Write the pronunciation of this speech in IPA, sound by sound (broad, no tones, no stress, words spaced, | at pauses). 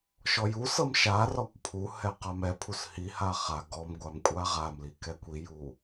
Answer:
ʃɔjusɤm ʃa rɔkʷpʰuhɛ qamɛpʰus hiha χa ɡɔmɡʷam kʷʼaʁamli kɛkʷiju